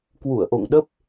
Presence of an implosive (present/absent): present